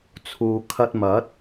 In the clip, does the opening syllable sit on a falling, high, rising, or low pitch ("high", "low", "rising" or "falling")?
low